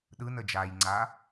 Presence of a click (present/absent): present